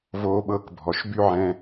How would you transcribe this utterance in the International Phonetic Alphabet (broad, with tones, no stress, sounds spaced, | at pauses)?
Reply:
v oː˧ ɓ ɤː˧ k bʱ ɔ˩ ʃ b y˥ ʕ ɛ̃˧